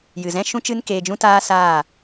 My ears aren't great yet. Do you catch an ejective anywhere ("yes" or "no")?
no